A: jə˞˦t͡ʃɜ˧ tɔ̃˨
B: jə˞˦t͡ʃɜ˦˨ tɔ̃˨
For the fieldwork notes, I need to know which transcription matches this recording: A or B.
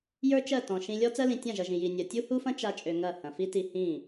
B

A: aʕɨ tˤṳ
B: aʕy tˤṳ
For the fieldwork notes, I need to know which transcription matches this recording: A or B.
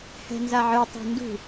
A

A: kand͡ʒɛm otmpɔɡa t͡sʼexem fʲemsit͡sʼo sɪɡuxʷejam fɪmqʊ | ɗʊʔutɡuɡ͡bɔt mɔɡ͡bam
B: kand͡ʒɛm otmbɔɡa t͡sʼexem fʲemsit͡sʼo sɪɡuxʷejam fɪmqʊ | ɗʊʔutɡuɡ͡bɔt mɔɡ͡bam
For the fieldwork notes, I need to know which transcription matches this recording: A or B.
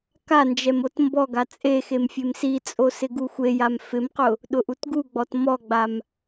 B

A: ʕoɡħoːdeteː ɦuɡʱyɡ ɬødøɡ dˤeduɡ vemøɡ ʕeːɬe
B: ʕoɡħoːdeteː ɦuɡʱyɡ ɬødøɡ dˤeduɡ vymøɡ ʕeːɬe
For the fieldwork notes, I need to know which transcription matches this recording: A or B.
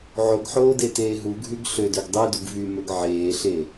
B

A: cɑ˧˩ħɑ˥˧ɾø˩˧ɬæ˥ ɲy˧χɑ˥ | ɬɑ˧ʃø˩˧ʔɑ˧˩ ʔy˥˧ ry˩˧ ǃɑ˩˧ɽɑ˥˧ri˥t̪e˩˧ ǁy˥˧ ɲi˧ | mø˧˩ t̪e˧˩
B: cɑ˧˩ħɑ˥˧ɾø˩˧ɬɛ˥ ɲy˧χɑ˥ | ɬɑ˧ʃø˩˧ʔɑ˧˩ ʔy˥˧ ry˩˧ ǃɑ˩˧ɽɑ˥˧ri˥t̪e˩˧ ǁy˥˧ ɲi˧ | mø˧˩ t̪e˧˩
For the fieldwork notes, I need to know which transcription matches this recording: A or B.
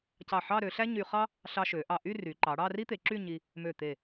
A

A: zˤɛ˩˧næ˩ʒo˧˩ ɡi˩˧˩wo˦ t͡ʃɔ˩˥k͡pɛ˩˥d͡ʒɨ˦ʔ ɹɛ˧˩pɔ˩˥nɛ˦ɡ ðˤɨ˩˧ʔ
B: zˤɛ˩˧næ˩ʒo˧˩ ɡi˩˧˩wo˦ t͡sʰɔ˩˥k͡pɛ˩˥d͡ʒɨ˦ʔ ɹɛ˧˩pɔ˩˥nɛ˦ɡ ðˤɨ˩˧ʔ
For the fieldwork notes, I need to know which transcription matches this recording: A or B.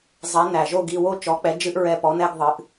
A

